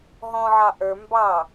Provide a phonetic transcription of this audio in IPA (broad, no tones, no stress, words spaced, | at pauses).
ɦɔ̃ʕɑ ʔə˞ mbɑ